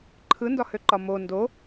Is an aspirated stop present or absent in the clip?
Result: present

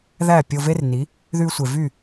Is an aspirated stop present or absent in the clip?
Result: absent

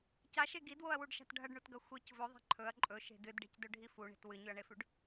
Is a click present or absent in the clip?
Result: present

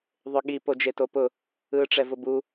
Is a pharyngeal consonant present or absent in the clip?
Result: absent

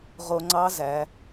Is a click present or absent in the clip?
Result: present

